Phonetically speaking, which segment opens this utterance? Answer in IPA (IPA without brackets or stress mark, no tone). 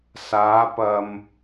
s